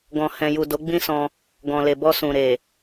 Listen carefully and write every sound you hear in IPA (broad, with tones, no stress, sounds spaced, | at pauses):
ɡ ɔ̃˨ h ɛ̃˨ j u˨ d o˨˦ ɡ͡b ĩ˦ s ɔ̃˧ | ɡ ɔ̃˨ l e˨ b ɔ˧ s ũ˨ ɾ e˨